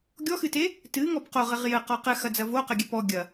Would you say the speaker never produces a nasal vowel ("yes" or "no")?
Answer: yes